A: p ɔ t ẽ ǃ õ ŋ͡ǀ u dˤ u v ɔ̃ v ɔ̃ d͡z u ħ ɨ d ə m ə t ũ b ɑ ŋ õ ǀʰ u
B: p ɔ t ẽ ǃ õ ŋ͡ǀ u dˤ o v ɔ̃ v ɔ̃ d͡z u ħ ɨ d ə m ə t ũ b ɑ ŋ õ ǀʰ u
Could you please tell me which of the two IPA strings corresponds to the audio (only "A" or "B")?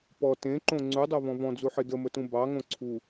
B